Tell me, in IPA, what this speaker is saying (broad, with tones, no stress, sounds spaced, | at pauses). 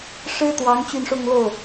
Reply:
ʂ ɻ̩˥ t̪ w ɑ˧˥ ŋ t͡ɕ y˥˧ n ʂ ʊ˥˧ ŋ l o˥˩ ʊ̯